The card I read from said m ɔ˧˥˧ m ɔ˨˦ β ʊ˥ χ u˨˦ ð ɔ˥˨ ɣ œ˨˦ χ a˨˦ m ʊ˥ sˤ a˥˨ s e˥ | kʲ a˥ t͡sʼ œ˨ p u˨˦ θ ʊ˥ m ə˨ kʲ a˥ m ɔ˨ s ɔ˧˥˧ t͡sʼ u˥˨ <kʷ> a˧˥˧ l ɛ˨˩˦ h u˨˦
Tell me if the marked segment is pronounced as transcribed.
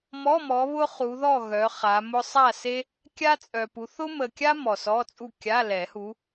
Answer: no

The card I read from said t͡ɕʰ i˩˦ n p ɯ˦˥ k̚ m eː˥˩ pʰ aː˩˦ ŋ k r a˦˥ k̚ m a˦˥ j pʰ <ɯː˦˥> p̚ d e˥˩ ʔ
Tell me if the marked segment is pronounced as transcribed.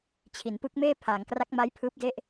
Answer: yes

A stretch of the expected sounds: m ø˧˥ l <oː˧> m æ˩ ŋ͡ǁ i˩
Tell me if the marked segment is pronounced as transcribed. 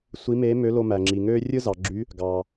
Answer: no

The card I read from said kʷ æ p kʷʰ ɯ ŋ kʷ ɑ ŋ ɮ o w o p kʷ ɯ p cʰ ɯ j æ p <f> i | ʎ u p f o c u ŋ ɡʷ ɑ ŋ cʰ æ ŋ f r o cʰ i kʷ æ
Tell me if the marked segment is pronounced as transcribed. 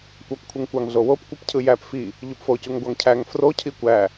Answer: yes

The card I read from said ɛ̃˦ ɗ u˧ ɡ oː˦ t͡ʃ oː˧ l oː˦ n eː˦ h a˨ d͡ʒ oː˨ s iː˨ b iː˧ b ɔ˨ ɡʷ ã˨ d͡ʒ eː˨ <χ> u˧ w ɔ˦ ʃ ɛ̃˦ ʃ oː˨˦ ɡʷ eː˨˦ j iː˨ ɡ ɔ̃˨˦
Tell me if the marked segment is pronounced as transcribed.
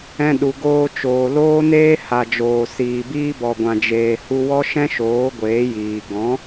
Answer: no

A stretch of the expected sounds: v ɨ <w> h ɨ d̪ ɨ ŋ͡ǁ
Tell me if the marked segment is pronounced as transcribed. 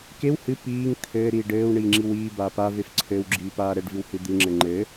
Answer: yes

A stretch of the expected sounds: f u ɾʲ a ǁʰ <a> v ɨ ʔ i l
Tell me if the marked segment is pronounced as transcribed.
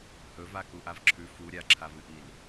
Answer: yes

